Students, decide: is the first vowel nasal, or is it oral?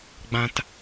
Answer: nasal